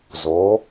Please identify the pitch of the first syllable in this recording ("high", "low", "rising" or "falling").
rising